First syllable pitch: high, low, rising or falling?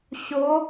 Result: rising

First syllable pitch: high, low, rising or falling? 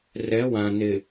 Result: rising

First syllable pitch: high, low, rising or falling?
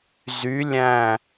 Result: rising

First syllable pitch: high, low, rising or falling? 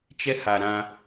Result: high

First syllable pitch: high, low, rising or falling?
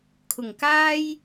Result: low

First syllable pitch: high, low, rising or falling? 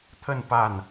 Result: falling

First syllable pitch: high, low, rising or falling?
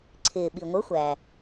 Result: low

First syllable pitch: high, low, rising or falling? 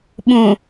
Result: low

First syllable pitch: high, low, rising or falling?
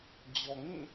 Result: low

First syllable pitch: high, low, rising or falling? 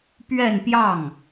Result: falling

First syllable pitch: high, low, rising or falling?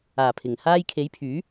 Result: low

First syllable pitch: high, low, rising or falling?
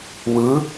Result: rising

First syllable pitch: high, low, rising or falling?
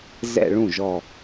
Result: falling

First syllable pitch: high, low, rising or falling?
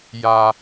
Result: high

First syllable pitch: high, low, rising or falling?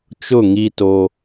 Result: falling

